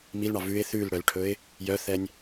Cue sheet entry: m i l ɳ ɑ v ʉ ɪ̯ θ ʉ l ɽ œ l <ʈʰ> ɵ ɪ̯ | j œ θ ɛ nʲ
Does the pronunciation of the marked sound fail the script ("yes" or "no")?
no